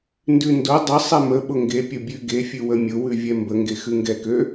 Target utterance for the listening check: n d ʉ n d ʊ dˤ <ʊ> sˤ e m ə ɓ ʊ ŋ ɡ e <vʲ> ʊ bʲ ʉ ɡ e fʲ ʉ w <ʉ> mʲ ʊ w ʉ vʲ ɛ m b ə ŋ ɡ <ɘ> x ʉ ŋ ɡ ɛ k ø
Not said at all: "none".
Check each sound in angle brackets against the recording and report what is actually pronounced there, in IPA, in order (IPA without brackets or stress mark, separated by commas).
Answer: ə, pʲ, ə, e